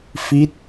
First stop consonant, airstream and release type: plain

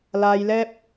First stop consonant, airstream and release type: plain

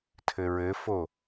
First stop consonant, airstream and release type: aspirated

